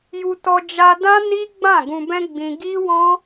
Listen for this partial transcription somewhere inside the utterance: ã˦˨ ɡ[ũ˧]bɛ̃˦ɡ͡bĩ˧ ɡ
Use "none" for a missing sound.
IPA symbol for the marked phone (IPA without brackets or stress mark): ũ˧